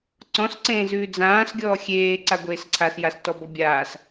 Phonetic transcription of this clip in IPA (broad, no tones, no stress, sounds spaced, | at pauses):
ǀ ɔ̃ s ǀ ẽː z ʉː d͡z ãː s ɡʲ ɔː xʲ eː ǀ a ɡʷ eː s ǀʰ a s j a s t ɔ b ɔ bʲ aː s